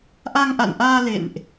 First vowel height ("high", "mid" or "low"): low